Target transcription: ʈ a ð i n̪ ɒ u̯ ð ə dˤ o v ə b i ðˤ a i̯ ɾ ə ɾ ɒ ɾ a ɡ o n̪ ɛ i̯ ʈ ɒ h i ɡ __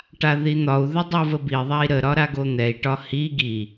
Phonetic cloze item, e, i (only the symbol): i